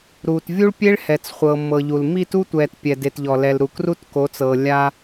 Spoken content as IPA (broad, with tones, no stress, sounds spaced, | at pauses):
ɾ uː˨ t vʲ u˦ ɭ pʲ e˦ ɭ h ɛ˨ t͡s χʷ ɤː˨ mː ɤ˨ ʎ u˨ l m i˦˨ t u˦ tʷ ɛː˨ t pʲ ɛ˨ d e˨ t ʎ ɔ˨ l ɛ˨ l ɾ u˨ k r u˦ t k o˨˦ t͡s ɤː˨ lʲ a˦